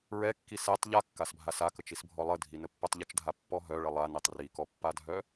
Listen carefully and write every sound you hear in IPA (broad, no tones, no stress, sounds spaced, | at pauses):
ɹ ɛ kː i s ɛ tˤ ʎ a kː a s bʱ a s a k ə t͡ʃ i s bʱ ɔ lˠ ə dʱ i n ə pː œ tˤ ʎ ə t͡ʃ dʱ a pː ɔ ɦ œ ɭ ə lˠ a n e tˤ r i k ɔ pː a dʱ œ